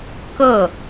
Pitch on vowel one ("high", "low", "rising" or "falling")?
falling